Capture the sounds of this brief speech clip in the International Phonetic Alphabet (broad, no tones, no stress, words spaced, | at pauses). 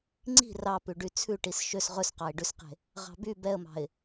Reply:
ŋ͡ǀi̤ rɑpʉ ɖyt͡sʰʉʈis ʃøs ʁɵsqɑɪ̯ɖʉsqe̤ | ʁɑ̤by bɛə̯mɑ̤ɪ̯